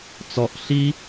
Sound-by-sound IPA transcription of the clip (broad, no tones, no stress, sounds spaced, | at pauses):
t͡s ɔ ʔ ɬ i